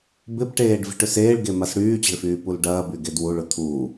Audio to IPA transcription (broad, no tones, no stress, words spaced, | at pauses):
bɪpʈeːɖ vi̤ʈʏseːɭɡe masɽyːt͡ɕe̤ɭ fyːpulɖɐːby ɡedwuɭʊ t̪ʰu